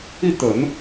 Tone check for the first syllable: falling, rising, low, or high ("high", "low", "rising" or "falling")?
falling